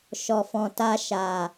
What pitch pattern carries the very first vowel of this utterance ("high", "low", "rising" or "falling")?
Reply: low